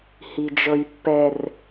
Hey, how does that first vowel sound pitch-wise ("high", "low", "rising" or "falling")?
low